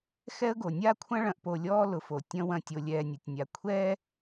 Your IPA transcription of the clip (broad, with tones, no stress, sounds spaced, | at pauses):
x ɛ˦ ə̯ ɡ o˨ nʲ a˦ kʷʰ ɐ̃˦ ɭ ɐ̃˨ ʔ p o˨ lʲ ɔː˦ l ʊ˨ f o˨ tʲ ɐ̃˦ w ɐ̃˦˨ tʲ o˦ lʲ ɛː˦ nʲ ʊ˨ tʲ nʲ a˨ kʷʰ ɛː˦